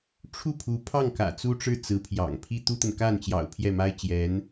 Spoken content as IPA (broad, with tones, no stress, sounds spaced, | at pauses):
ʈ͡ʂʰ u˥˩ pʰ u˧˥ pʰ ɑ˥˩ ŋ k ä̰˨˩ t͡s u˥ ʈ͡ʂ ɻ̩˥˩ t͡s ɹ̩˧˥ pʰ j ɑ̰˨˩ ŋ pʰ i˥ t̪ u˥ t̪ ə˨ n k a˥˩ n t͡ɕ j ɑ̰˨˩ ʊ̯ pʰ j ɛ˥˩ m a˥ ɪ̯ t͡ɕ j ɛ˧˥ n